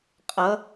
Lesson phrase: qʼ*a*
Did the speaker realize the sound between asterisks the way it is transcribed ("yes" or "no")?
no